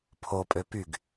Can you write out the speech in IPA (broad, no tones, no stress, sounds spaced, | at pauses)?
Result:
pʰ o pʼ ø p y ɡ